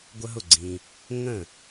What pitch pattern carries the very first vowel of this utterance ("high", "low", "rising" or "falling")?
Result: high